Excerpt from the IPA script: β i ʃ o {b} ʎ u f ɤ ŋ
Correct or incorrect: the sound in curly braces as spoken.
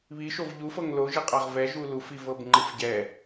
incorrect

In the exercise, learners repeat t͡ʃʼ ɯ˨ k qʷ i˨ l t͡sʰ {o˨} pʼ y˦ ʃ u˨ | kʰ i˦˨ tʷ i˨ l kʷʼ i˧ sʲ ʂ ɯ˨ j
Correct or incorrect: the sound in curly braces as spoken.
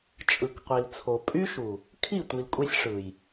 correct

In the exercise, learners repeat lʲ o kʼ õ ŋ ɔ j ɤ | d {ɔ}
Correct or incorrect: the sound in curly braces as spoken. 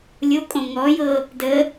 incorrect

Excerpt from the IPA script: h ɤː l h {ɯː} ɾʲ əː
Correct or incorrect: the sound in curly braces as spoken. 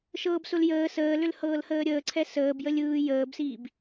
incorrect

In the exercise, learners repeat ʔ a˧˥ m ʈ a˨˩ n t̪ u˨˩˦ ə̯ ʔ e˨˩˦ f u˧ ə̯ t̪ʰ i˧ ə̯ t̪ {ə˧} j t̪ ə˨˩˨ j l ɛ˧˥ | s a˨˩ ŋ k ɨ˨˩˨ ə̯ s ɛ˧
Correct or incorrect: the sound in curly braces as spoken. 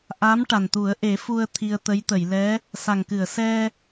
incorrect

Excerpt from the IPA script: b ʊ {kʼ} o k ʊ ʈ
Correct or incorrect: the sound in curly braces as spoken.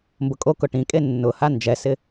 correct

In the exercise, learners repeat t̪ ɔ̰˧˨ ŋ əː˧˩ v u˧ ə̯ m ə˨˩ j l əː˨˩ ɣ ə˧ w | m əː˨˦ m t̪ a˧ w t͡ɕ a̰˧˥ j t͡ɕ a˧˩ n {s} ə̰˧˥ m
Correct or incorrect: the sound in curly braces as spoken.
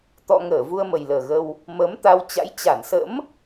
correct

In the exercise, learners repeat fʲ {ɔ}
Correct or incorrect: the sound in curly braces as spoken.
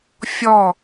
correct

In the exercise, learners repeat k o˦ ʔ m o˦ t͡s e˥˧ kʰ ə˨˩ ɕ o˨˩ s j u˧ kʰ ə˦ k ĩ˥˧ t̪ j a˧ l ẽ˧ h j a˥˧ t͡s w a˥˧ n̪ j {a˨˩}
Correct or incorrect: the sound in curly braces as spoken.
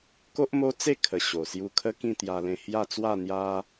incorrect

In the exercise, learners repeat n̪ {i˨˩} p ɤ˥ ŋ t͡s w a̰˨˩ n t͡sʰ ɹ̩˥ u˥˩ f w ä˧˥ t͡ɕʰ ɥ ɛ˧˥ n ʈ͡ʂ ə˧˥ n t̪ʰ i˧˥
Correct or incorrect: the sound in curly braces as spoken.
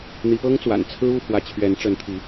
incorrect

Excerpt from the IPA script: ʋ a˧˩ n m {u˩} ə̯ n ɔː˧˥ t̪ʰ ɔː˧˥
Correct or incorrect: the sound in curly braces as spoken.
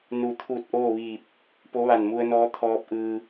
incorrect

